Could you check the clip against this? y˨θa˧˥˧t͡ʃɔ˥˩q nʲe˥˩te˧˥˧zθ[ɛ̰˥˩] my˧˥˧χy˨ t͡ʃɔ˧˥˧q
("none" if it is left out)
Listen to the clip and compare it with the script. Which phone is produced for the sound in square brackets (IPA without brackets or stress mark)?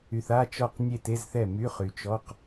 ɛ˥˩